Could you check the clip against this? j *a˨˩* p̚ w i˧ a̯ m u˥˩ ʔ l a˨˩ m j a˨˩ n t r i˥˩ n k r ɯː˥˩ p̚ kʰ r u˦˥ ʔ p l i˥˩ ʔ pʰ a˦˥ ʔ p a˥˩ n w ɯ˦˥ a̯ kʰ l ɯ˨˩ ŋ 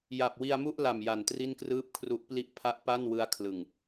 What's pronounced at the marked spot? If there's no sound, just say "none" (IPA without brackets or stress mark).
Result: a˨˩